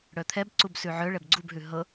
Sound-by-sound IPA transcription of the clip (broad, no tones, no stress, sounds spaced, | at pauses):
ɽ œ t̪ʰ ɛ b ǀ u b s ʉ ʕ œ ɭ ɛ b ɡ͡ǀ u b ɦ ʉ ɦ ɤ